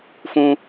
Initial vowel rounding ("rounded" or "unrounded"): rounded